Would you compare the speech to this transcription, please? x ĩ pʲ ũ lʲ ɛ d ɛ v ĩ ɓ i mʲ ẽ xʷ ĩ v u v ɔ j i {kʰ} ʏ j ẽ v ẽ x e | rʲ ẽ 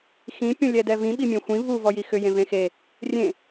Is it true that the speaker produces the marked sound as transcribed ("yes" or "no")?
no